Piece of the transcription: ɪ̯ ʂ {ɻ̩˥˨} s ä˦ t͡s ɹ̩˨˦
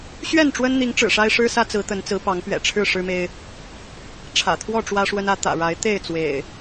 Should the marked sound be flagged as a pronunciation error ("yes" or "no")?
yes